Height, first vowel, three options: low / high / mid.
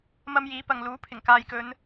low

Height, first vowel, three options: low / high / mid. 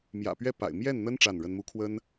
low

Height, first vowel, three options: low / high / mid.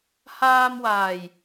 low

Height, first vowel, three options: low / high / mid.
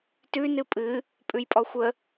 high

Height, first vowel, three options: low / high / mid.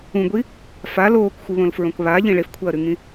high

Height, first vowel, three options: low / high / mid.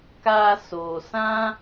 low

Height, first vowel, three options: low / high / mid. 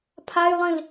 low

